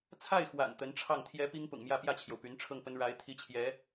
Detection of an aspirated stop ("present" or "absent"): present